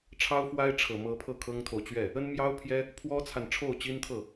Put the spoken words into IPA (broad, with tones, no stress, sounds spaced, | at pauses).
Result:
ʈ͡ʂʰ ɑ˥ ʊ̯ f w a˥ ɪ̯ ʈ͡ʂʰ ɤ˨˩ m ɤ˧˥ pʰ ɤ˥˩ kʰ ɤ˥ ŋ t̪ʰ o˨ ʊ̯ t͡ɕ ɥ ɛ˥˩ | ə˥ n m j ɑ˥ ʊ̯ pʰ j ɛ˥ | pʰ w ɔ˥ t͡sʰ a˨ n ʈ͡ʂʰ o˥˩ ʊ̯ t͡ɕ i˥ n t̪ʰ ɤ˥˩